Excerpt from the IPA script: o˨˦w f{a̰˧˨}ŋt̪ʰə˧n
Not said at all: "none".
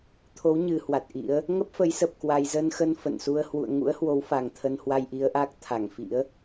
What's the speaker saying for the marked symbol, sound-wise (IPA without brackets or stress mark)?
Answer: a˨˩